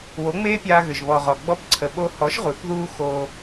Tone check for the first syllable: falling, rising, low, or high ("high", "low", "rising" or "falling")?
rising